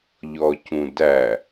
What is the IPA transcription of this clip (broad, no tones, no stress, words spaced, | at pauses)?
ʎɔcũdæ